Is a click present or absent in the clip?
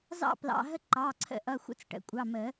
present